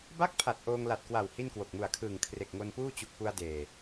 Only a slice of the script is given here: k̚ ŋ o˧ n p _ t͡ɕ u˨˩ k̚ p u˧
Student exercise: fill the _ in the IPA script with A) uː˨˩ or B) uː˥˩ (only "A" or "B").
B